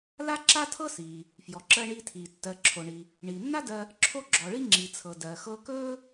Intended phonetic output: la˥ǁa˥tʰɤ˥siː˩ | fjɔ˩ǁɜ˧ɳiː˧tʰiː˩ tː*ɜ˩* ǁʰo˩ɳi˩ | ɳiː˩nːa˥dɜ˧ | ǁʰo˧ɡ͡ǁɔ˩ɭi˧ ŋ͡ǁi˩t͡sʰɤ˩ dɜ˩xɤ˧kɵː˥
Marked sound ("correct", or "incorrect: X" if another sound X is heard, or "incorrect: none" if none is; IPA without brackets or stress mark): correct